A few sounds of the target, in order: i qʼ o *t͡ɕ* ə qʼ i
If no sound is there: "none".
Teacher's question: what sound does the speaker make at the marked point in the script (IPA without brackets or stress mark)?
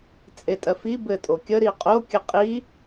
kʲ